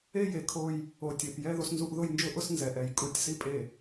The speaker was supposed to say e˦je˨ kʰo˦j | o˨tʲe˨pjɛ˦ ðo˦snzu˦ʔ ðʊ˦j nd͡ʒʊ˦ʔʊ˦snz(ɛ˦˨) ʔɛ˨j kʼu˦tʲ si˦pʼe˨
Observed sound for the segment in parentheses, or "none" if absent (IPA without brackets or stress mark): ɛ˨